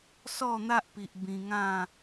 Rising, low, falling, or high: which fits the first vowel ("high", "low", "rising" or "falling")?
falling